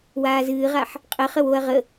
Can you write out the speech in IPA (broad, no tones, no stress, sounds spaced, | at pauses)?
w aː z ɨː ʁ a ħ | qʼ ə χ ə w o ɐ̯ ʁ ə